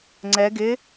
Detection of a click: present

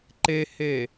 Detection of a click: present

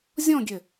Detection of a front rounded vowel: present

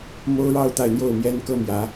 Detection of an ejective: absent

